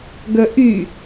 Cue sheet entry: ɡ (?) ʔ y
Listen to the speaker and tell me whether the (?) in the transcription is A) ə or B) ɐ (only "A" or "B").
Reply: A